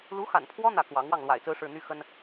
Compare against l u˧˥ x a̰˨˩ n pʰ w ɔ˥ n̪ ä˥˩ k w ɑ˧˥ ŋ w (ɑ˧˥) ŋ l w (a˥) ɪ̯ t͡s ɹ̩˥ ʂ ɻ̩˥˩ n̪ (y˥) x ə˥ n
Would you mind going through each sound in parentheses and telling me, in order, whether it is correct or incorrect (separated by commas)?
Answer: incorrect, incorrect, correct